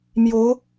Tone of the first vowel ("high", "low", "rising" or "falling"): rising